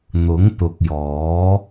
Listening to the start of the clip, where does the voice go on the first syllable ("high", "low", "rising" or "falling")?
rising